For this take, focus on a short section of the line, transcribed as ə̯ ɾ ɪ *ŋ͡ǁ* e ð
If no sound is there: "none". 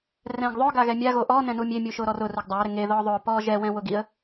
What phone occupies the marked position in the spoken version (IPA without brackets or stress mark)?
ŋ